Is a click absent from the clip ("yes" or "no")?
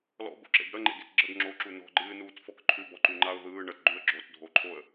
no